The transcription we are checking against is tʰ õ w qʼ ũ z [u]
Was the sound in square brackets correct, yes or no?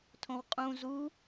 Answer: yes